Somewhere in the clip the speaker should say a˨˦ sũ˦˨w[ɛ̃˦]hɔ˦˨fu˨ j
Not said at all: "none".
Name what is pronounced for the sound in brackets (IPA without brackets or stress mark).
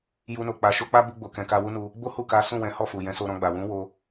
ɛ̃˨˦